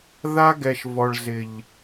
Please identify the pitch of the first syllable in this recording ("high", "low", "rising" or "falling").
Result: high